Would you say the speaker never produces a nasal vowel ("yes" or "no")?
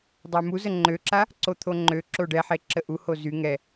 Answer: yes